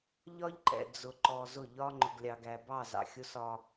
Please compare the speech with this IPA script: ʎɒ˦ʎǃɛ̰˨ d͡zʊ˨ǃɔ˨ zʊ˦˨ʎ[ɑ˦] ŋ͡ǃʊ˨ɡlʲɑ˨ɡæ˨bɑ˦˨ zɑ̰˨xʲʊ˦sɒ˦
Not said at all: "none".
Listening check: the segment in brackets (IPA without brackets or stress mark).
ɒ˦